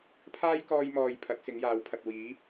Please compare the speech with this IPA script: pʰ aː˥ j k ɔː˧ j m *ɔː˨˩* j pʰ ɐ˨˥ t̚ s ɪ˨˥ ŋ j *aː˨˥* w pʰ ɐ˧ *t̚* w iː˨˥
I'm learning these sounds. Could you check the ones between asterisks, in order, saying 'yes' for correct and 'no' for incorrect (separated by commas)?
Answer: no, yes, yes